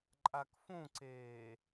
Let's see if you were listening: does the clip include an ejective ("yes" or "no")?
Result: yes